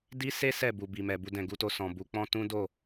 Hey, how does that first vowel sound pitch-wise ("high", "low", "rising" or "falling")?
high